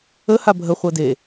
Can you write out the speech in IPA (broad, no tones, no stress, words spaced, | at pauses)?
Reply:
ə habʱə χʷɤde